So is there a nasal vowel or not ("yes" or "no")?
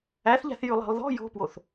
no